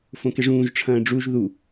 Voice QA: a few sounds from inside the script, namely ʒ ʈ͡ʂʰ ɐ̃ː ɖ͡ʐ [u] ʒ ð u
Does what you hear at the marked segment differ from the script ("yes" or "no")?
no